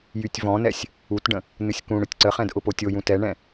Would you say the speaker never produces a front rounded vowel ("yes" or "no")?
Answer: no